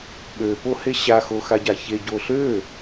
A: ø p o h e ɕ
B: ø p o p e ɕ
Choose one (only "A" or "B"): A